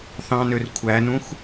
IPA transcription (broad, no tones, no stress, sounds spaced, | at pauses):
θ ɑ̃ n ø r kʷʰ æ n ũ x